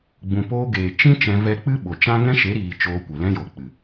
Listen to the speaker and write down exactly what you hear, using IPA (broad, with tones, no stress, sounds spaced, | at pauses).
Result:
ɡ͡b ũ˨ p oː˧ ɡ eː˨ t͡ʃ ĩ˦ t͡ʃ ɛ̃˧ v ɛ˦ k͡p ɨ˦ ɓ o˨ t͡ʃ ã˦ ŋ ɛ̃˦ ʃ e˨˦ ɾ iː˨ t͡ʃ oː˧ kʷ e˨ l ɛ̃˦ j o˨ k͡p ɨ˨